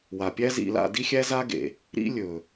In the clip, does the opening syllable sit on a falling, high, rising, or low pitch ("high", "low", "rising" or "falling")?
low